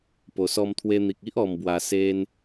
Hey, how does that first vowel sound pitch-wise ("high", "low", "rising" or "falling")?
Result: low